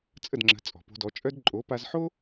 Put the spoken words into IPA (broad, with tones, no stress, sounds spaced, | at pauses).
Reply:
t͡sʼ ə˥˩ d ŋ͡ǁ ə̤˩˥ t͡sʼ ɔ̤˩ p o̤˧ d ɔ˩˥ t͡ʃʼ œ˥ d ǃʼ o˩˥ p a˧ z ħ o˥